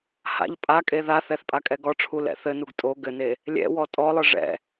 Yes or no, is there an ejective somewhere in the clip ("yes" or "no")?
yes